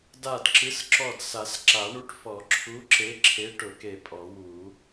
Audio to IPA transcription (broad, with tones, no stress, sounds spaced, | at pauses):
d a˧˩ d ǁ ɨ˨˥ s ǁ ɔ˧˩ d s a˨˩˦ s ǁ a˨˩˦ ɳ u˨˥ ʈ f ɔ˨˩˦ ǁʰ u˨˥ ǁ e˨˥ ǁʰ e˨˥ ʈ ʊ˨˩˦ k e˧˩ pʼ ɔ˨˩˦ w u˨˩˦